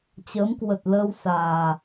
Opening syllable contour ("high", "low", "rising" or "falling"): rising